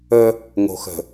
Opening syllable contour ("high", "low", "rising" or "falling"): high